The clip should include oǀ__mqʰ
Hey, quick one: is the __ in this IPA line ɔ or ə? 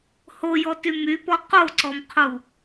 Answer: ɔ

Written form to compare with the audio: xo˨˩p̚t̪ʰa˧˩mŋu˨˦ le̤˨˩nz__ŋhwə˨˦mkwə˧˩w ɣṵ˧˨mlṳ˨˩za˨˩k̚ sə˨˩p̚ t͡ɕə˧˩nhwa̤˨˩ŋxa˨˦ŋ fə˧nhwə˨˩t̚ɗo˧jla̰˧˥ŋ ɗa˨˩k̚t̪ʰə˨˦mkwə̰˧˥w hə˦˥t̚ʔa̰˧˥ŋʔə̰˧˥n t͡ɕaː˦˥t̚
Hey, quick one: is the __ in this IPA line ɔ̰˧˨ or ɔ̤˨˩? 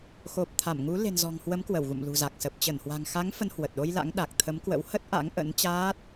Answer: ɔ̤˨˩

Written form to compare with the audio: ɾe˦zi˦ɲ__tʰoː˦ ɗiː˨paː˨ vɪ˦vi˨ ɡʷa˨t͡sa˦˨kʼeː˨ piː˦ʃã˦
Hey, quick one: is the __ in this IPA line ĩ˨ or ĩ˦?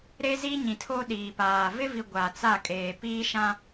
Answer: ĩ˨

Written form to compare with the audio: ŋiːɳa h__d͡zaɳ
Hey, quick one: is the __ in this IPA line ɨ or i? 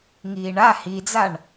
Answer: i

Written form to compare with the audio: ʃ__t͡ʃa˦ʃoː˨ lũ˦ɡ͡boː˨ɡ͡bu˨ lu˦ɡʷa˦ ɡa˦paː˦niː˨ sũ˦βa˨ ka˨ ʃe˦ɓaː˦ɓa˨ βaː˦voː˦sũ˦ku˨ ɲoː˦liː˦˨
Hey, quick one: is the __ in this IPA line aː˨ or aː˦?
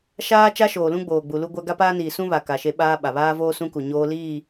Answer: aː˦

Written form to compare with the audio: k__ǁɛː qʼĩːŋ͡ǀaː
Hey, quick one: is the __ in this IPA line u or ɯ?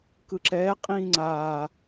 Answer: ɯ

